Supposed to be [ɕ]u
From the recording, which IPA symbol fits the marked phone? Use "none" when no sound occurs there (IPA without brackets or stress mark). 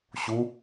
ɕ